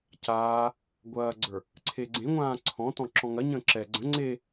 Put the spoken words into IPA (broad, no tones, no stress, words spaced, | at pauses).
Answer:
caː | ɡʷɐːɡ͡ǀə˞ | ǀʰeɡ͡ǀẽŋʷãː ǀʰɔ̃tɔ̃ ǁɔ̃ŋɐ ɲə̃ːǁɛ ɡ͡ǀə̃ ŋ͡ǀe